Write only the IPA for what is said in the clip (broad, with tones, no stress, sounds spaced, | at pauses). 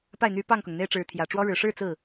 p a˥˩ ɪ̯ n̪ y˧˥ p ɑ˥˩ ŋ k ʊ˩ ŋ n̪ e˥ ɪ̯ ʈ͡ʂ ɻ̩˧˥ t̪ʰ j ä˨˩ ʈ͡ʂ w ɔ˥ ɻ ɻ̩˨˩ ʂ ɻ̩˥˧ t͡s ɹ̩˥˩